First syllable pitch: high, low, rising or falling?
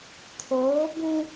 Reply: rising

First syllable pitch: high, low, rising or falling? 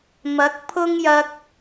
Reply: rising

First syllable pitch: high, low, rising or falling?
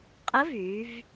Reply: rising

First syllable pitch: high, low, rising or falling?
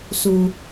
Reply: low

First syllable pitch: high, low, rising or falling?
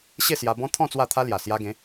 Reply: falling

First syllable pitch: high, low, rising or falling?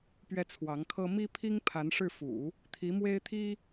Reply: falling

